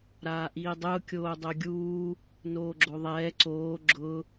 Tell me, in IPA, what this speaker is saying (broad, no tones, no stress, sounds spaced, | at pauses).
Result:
ɾ aː ʔ iː dˤ ʊː kʲ oː dˤ o ɡʲ uː | n oː ɡ͡ǁ o ðˤ ɛː ǀ oː ɡ͡ǁ ʊ